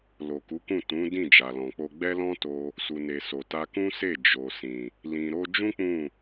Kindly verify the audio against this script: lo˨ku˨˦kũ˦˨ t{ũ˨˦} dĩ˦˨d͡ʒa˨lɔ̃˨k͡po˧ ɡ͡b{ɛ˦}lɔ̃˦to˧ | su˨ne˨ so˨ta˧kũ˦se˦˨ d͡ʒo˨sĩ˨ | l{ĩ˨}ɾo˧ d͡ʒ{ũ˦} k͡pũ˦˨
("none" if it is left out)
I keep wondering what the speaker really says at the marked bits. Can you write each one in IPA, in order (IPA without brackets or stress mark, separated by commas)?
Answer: ũ˨˦, ɛ˦, ĩ˨, ũ˦